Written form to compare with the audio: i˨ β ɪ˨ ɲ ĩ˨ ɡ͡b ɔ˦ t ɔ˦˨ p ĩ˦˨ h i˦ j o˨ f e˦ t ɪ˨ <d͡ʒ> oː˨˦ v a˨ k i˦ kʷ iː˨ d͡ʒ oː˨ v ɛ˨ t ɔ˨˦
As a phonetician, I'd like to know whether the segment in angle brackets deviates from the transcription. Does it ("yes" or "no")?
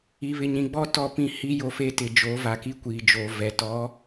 no